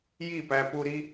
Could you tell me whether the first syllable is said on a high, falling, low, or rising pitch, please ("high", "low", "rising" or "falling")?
falling